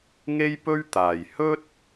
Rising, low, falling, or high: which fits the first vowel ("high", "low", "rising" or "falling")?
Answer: high